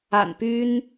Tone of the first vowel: low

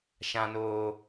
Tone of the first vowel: low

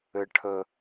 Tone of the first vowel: low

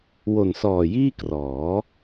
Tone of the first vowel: low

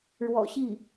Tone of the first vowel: low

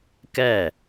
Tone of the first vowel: falling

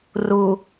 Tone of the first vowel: low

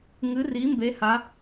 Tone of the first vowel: rising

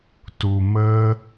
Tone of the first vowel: low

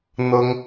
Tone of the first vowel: high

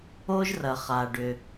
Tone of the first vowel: high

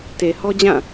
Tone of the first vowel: low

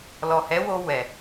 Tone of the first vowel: low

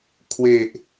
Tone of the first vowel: low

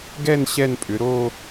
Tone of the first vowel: falling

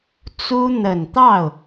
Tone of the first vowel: high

